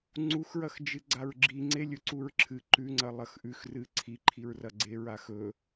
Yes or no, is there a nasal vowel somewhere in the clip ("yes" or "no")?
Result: no